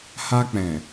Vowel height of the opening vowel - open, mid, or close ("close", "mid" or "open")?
open